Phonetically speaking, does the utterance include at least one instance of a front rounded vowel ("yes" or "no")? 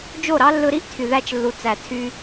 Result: yes